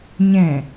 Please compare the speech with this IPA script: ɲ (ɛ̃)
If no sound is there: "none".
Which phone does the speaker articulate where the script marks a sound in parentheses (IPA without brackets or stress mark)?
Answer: ɛ̃